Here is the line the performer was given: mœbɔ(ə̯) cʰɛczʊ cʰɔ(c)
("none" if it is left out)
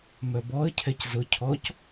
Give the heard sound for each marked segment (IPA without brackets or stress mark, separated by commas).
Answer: ə̯, c